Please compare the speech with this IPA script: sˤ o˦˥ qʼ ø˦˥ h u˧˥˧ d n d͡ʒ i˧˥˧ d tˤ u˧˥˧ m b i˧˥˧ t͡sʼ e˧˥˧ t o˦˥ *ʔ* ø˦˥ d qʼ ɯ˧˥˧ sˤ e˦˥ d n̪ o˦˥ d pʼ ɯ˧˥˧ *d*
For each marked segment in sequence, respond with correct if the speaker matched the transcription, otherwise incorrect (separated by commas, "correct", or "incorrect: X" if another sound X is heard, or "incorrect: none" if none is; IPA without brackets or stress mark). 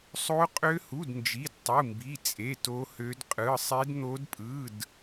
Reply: incorrect: h, correct